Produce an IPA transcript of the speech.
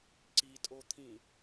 ǀ i tʼ o t̪ʰ ĩ

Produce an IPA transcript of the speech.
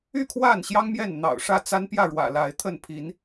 y˥˨ kʰ w a˥˨ n ɕ j ɑ˦ ŋ m j ɛ˥˨ n n̪ ɑ̰˨˩ ʊ̯ ʂ ä˥˨ t͡s a˦ n p j ä˥˨ ɻ w ä̰˨˩ l a˨˦ ɪ̯ t̪ʰ ə˥˨ n pʰ i˨˦ n

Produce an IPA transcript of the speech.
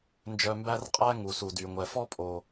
n d͡ʒ œ˨ m b æ˥ r qʼ æ˥ ŋ u˩ s u˩ d y˩ ŋʷ ɛ˩ f ɔ˥ pʼ o˩

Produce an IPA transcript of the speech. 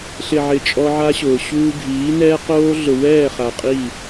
ɬ ɪ˨ ʕ ɪ˨ t͡ʃʼ ɔ˦ ʕ a˦ ɕ ʊː˨ ɕ uː˦ ɡʱ iː˨˦ n ɛː˦ q oː˦ ɮ ʊ˨ w ɛː˦˨ χ a˨ qʼ i˦˨

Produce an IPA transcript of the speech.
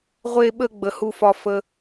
ʁʷ e˧ ɓ ə˧ ɡ͡b ə˨ h u˧ f ɒ˧ f ə˦

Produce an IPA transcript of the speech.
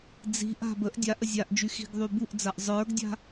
d͡z i̤ ʔ a̤ b ə ʔ dʲ a ʔ ə zʲ a ʔ d͡ʒ y x i̤ ɡ ðˤ y b u ʔ d͡z a ʔ zˤ ə˞ ɡ dʲ a̤

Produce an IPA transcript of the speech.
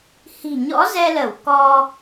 h i̤˨˩ ɲ ɔ̰˧˥ z ɛ˧ l ə˧˩ w k ɔ˧

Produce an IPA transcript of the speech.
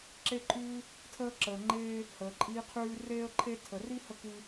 ǁ e˦ ǃʼ ʉː˦ | tʰ əː˦ ǁ əː˨ ŋ͡ǃ eː˦ | h əː˨ ǃʼ iː˦ qʰ ʉː˦ r eː˦ ə̯ ǃʰ e˦ tʰ ə˨ r i˦ h ə˦ k ʉ˦

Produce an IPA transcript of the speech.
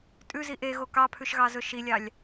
tʼ ʉ z i ʔ e ɣ o k ɑ pʰ ʉ ʃ ɣ ɑ z ɵ ʃ i lʲ ɑ lʲ

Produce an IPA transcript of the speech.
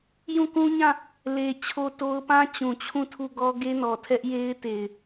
j ũ˦˨ k ũ˦ ɲ ã˦˨ | l e˨ t͡ɕʰ o˦ t o˦ ʊ̯ p ã˦ t͡ɕ ũ˨ t͡ɕʰ ũ˦˨ tʰ u˦˨ ɡ ɔ˦ ɡ e˦ n ɔ˨ tʰ ɛ˦ ʔ j e˦ ɪ̯ t e˨ ɪ̯

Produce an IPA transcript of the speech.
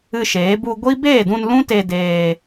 ɨ˧ ʃ eː˨˦ b u˧ ɡʷ i˦ b eː˦˨ d ũ˧ n l ũ˦ t e˧ d eː˧

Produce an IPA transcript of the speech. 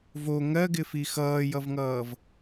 v o ŋ ɜ ɡ ɪ f i x ʌː j ʌ v ŋ ʌː v

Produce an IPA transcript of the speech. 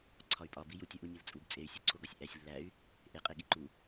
ǀʰ ɒ y̯ pʼ ɒ b i j u tʲ ɒ ʔ u nʲ ɒ l t͡sʼ u b t͡sʼ e y̯ sʲ o ǀʰ o ɡ ɒ sʲ ʔ æ sʲ lː æ y̯ | ʔ e qʼ e ɠ i ǃ u

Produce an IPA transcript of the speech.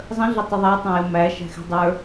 zˤ ə̃ ɮ ə tˤ ə ðˤ æ tˤ ə̃ j ə m æ ʃ æ̤ x ɛ̤ dˤ ə˞

